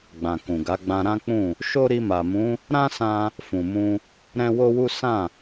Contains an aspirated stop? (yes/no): no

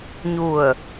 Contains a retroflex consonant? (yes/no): no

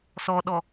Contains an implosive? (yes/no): yes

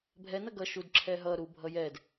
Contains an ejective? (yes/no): no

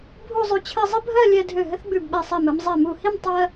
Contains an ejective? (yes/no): no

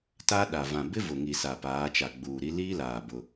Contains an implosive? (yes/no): yes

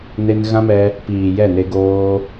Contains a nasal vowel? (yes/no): yes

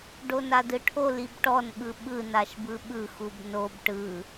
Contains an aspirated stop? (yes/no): yes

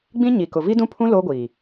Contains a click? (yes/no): no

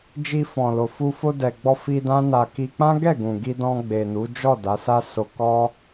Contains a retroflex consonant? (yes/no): no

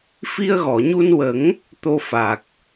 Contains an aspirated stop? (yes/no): no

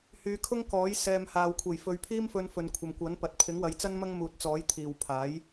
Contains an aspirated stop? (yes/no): yes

